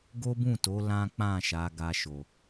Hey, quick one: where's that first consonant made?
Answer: velum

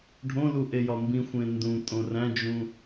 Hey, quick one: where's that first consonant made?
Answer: retroflex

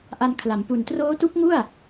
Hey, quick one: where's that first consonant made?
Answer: throat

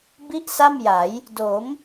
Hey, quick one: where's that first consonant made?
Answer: lips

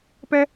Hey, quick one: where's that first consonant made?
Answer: lips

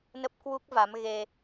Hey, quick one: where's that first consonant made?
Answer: tongue tip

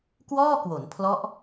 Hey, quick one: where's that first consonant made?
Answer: velum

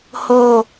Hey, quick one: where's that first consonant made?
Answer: throat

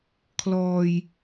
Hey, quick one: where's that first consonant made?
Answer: velum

